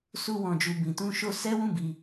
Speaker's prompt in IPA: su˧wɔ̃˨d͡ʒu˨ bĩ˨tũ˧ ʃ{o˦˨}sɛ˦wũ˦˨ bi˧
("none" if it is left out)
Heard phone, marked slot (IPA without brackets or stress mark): o˧